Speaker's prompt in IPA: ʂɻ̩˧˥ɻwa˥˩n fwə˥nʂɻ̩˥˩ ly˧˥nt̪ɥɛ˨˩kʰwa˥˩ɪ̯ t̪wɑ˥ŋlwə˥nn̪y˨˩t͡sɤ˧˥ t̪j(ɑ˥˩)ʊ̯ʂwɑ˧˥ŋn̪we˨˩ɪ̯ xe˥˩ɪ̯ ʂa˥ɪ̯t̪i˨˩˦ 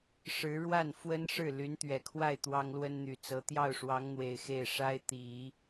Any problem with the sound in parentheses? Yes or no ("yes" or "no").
no